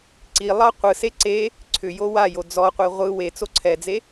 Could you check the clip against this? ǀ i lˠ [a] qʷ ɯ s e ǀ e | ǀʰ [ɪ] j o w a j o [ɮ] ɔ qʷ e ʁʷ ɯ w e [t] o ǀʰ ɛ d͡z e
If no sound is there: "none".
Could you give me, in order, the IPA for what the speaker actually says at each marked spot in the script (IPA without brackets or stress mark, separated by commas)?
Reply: ɑ, ʏ, d͡z, t͡s